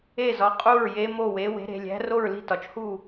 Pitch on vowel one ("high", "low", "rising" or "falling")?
falling